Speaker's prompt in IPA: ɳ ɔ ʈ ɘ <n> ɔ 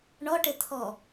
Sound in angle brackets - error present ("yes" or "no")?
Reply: yes